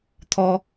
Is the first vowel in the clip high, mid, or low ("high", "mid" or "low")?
mid